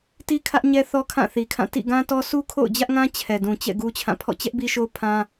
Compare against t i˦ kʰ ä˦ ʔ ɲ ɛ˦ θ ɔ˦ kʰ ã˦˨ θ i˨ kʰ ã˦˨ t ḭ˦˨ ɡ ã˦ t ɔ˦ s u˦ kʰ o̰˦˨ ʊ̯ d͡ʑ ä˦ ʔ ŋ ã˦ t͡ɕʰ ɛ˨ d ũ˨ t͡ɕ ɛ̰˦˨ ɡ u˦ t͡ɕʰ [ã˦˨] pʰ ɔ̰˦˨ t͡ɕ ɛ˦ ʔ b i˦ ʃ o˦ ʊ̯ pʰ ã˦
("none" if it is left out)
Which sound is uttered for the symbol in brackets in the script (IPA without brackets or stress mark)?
ã˦˨